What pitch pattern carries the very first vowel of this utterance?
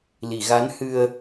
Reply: low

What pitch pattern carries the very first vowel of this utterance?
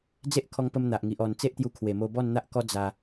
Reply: high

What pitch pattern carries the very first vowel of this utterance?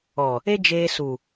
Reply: low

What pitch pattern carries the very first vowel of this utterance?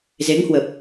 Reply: rising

